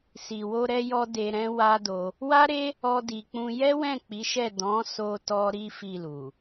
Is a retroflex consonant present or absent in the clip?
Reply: absent